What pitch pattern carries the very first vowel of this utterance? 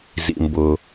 low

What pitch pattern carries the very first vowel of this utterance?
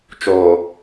low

